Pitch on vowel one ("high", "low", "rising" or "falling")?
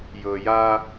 low